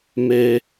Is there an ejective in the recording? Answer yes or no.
no